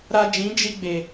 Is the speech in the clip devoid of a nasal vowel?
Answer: no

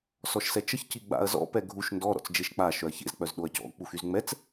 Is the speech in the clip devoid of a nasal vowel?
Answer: yes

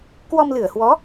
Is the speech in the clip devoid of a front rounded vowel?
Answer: yes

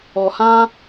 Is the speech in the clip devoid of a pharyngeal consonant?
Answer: yes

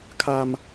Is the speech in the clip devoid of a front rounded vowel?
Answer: yes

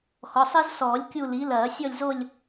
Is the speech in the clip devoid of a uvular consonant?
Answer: yes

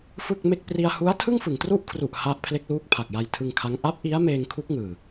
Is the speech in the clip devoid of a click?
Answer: yes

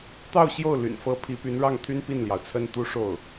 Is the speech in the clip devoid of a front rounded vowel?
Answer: no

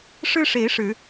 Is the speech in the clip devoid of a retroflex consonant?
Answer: no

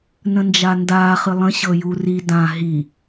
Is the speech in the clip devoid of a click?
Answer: yes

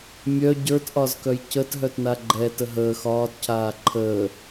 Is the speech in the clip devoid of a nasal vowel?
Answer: yes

